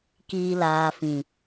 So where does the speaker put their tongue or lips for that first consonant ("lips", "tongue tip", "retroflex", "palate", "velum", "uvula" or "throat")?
velum